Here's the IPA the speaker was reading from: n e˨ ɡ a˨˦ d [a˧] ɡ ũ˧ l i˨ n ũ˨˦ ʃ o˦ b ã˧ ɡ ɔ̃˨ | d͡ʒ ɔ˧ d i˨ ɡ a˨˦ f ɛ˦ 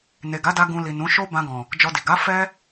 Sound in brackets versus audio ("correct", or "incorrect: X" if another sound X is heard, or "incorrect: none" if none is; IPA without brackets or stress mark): correct